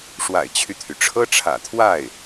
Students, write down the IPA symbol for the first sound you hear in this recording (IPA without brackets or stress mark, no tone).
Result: ʂ